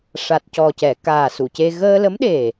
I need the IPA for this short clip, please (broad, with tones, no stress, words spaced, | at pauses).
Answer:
ʂa˨˩t̚cɔ˨˩cɛ˨˩˨ kaː˨˩su˨˩˨ce˧ ɣəː˧lə˧˥mɗe˨˩